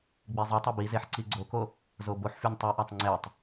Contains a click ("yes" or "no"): yes